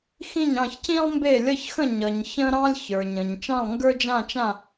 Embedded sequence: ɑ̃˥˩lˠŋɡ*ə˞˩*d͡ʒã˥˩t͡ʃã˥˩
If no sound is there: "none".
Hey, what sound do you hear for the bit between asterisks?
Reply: ə˞˥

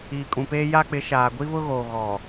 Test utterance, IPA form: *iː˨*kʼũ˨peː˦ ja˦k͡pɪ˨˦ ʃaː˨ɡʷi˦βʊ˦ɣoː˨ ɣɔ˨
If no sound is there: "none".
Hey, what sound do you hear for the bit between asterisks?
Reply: iː˨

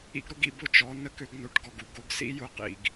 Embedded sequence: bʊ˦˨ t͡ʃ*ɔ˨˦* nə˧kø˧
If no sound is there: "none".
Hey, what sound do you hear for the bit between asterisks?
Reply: ɔ˨˦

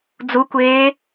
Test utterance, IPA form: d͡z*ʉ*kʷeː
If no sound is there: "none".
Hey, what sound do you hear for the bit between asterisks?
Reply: u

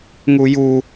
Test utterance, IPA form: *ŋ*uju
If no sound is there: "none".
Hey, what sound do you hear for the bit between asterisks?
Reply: ŋ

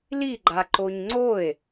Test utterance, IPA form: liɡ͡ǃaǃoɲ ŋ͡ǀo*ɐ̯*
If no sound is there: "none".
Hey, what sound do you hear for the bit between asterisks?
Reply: e̯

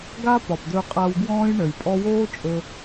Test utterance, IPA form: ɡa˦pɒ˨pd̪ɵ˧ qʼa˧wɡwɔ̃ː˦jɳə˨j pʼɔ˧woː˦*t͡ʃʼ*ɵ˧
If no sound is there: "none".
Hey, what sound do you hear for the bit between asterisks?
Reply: t͡ʃʼ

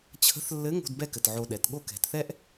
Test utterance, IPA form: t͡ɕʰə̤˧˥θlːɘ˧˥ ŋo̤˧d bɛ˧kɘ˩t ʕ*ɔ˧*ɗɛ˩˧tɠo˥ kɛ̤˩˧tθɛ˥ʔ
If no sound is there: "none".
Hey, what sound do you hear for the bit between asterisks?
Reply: o˧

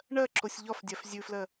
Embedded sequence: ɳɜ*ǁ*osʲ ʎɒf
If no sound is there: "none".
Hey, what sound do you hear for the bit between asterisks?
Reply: ǁ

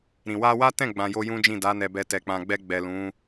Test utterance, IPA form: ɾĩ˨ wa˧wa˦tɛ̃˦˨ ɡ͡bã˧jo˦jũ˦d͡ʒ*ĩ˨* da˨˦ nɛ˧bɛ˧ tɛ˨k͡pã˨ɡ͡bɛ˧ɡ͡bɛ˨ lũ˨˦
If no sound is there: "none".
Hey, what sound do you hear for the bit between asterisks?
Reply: ĩ˦˨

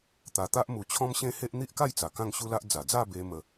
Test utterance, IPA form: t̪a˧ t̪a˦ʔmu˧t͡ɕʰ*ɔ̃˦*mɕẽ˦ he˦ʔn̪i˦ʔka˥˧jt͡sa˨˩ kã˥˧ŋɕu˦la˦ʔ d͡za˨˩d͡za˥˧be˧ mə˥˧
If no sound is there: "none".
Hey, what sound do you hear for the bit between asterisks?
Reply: ɔ̃˦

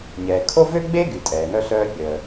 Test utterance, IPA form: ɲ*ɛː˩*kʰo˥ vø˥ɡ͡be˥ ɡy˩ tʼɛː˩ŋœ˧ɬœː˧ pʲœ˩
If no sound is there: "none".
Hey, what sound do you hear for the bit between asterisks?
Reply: ɛː˩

